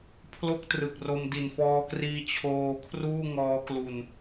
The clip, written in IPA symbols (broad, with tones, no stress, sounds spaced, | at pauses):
pʰ l o˥˩ k̚ t r ɯ˨˩ k̚ r o˧ m d i˨˩ n f ɔː˧ k r iː˧ t͡ɕʰ oː˧ kʰ r uː˥˩ ŋ ɔː˦˥ k l u˧ n